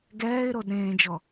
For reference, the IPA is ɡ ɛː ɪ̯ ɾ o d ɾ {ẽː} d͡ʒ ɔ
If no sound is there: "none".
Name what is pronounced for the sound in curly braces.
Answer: ẽː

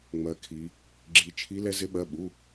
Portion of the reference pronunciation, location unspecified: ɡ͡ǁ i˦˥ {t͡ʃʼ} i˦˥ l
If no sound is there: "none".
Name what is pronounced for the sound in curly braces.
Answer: t͡ʃʰ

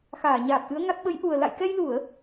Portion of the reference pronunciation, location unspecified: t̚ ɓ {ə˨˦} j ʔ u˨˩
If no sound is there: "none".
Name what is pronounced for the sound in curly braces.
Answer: ə˨˦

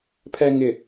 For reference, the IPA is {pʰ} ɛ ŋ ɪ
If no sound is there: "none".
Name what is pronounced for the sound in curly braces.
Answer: pʰ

